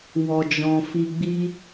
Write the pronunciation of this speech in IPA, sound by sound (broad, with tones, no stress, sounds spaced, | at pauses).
w ɔ˨ d͡ʒ ɔ̃˨ f i˨ ɡ͡b i˧